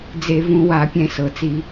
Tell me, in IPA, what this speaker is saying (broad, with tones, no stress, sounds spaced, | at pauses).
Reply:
d͡z e˧˩˧ v ũ˧˩˧ w a˧˩˧ pʲ ɛ̃˧˩˧ s ɤ˩ t͡s i˧˩˧